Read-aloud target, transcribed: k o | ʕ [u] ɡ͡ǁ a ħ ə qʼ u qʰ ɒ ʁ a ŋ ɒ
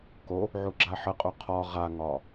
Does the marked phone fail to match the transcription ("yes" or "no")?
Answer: no